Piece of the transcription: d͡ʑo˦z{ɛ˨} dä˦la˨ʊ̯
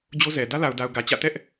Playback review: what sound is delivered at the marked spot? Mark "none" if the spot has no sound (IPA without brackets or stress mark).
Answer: ɛ˨